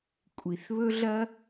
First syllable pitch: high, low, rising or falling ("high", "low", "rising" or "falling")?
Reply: low